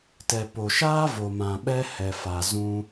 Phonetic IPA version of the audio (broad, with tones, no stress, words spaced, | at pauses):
tɛ˨po˨ʃaː˦ vo˨mã˨ ɓɛ˦hɛ˨fa˨ zũ˧